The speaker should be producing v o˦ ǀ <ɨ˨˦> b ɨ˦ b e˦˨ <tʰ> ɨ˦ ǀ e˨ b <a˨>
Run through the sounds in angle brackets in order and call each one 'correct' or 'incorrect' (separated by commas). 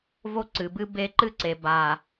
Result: incorrect, incorrect, correct